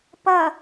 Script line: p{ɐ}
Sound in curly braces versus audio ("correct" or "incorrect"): correct